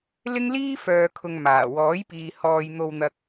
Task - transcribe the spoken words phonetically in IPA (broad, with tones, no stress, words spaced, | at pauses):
lɪ˥ŋliː˥ fœː˨kʰʊ˨ŋ maː˨˩ wɔː˨˥jpiː˨ hɔː˨j n̪o˧wn̪ɐ˧k̚